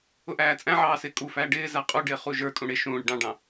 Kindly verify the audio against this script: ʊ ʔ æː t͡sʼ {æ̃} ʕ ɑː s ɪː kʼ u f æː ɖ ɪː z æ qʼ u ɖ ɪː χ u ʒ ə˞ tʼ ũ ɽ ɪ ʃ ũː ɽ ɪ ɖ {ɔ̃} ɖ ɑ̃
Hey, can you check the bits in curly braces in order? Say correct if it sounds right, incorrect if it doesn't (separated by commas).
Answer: correct, incorrect